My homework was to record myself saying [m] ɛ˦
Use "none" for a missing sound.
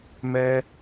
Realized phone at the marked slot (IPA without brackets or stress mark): m